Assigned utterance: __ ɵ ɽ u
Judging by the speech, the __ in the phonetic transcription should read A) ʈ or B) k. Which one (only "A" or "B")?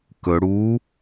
B